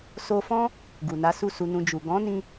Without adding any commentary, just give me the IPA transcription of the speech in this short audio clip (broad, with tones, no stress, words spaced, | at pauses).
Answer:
so˧fɔ̃˦ | ɡu˨na˨˦ su˦˨su˧nũ˧ d͡ʒu˨ ɡɔ̃˨˦nĩ˧